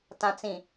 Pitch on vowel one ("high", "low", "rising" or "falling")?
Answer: low